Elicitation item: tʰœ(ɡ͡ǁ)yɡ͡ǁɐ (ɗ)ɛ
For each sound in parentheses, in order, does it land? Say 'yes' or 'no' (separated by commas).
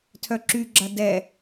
no, no